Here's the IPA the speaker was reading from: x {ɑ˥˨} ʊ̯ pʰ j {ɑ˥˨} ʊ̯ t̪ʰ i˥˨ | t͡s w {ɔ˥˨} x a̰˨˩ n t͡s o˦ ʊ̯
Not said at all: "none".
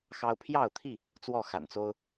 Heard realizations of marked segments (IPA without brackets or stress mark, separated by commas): ɑ˦, ɑ˥˨, ɔ˥˨